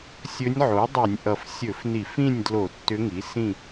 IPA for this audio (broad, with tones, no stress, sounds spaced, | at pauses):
sʲ ɵ˧˥ nʲ ʕ o˩˥ dˤ y˧˩˧ nʲ ʔ ʌ˨˩ f sʲ ɵ˧˩˧ f n i˧˩˧ f ĩ˥˨ nʲ d l o˧˩˧ tː ʏ˧˥ ŋ i˩˥ s ĩ˥˨